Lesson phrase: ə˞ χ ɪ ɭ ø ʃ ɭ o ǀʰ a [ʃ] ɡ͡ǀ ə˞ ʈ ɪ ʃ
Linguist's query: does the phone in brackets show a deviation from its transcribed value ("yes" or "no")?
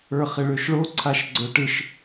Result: no